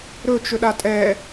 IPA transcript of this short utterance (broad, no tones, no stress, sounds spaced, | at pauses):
ɾ ɵ t͡ʃ ɵ ɗ a tʼ ɛ